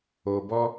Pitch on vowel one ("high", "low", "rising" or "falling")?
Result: low